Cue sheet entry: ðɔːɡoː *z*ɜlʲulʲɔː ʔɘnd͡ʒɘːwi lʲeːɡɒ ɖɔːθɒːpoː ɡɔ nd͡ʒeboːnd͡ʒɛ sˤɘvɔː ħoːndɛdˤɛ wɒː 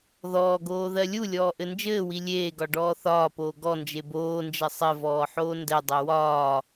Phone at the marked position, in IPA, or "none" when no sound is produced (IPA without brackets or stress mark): ð